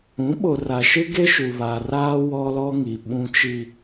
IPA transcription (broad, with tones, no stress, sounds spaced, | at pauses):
ũ˨˦ ɓ o˨ r a˨ ʃ ɪ˦ ɡ e˦ ʃ u˨ β a˨ r aː˦ w ɔ˦ l ɔ˦ ŋ i˨ ɓ ũ˦ t͡ʃ i˦